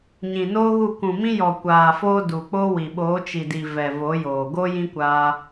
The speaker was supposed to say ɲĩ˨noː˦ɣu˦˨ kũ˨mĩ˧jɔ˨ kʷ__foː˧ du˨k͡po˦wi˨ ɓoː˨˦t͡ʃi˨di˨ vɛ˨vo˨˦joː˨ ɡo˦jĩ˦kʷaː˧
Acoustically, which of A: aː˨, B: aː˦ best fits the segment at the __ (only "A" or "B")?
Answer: A